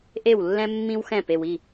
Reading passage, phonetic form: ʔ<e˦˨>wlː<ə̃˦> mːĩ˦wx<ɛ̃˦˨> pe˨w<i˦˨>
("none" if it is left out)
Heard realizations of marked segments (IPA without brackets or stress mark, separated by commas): e˦˨, ɛ̃˦, ɛ̃˦˨, i˦˨